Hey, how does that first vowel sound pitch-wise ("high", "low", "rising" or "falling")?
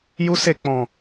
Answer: high